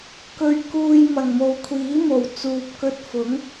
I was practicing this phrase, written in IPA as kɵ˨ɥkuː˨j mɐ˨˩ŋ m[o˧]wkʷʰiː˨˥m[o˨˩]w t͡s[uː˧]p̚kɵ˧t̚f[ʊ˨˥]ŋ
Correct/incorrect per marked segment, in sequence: incorrect: o˨, correct, incorrect: uː˨, correct

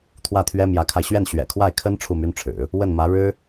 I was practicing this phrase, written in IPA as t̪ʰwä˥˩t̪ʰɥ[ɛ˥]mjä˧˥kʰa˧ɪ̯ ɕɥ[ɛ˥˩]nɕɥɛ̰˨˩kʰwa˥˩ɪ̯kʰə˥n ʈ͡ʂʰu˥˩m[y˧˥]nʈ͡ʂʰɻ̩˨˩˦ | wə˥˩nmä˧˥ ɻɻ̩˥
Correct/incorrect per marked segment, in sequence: correct, correct, incorrect: y˥

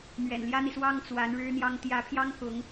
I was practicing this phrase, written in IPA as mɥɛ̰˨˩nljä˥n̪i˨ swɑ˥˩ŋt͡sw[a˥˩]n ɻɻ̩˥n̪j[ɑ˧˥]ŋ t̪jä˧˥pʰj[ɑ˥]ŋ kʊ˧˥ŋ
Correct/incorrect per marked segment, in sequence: incorrect: a˧˥, incorrect: ɑ˥, correct

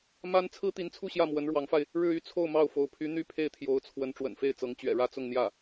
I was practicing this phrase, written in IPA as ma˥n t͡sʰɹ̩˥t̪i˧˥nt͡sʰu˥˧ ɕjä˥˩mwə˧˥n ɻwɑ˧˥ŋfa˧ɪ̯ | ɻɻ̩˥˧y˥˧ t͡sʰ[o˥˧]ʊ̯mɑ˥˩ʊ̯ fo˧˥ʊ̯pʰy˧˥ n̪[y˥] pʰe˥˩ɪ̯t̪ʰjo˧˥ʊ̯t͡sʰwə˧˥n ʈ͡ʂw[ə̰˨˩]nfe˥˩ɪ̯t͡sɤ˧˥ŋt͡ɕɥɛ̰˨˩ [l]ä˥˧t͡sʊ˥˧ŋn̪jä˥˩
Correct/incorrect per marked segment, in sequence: correct, incorrect: y˥˧, correct, incorrect: ɻ

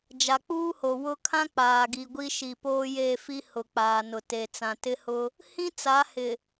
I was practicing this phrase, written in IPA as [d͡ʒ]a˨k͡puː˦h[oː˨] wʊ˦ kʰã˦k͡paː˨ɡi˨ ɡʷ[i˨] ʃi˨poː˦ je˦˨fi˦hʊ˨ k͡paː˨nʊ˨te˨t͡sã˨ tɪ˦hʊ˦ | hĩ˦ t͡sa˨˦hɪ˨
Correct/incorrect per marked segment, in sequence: correct, incorrect: o˨, incorrect: i˦

